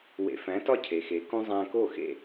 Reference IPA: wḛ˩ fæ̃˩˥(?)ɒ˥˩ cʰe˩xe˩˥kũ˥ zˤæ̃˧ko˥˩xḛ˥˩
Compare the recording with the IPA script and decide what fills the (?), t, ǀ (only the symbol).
t